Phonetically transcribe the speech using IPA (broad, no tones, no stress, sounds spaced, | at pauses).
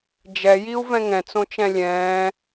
d͡ʒ ɛ j i u̯ v ɛ̃ ŋ ɛ̃ t͡s õ t͡ʃ ɛ̃ lʲ ɛ̃ː